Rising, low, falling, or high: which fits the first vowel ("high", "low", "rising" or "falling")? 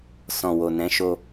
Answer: low